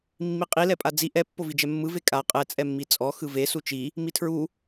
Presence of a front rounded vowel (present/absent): absent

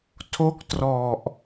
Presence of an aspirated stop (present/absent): present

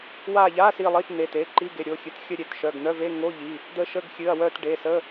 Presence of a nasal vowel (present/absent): absent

